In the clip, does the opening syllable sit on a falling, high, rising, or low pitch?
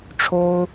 high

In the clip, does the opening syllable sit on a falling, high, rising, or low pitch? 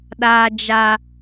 low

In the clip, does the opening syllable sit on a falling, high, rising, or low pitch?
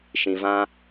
low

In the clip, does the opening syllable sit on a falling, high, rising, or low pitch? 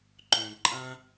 low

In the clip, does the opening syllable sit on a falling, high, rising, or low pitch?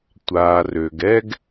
low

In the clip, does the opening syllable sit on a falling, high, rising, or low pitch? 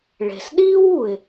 low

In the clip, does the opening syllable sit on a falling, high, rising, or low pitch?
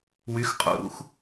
rising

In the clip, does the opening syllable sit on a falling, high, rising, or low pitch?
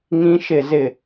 high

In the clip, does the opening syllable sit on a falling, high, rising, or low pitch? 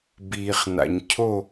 low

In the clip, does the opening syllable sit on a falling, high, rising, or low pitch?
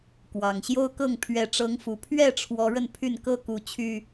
low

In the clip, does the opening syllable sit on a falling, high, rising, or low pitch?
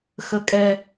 high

